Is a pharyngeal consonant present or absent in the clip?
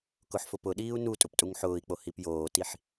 present